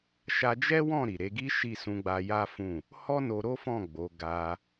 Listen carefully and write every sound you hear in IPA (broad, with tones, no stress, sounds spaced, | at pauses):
ʃ a˧ d͡ʒ ɛ˦ w ɔ̃˦˨ ɾ i˨ ɾ e˧ ɡ i˦ ʃ i˦˨ s ũ˧ ɡ͡b a˧ j a˦ f ũ˦˨ | h ɔ˦ n o˧ ɾ o˦ f ɔ̃˦˨ ɡ͡b o˨˦ ɡ a˧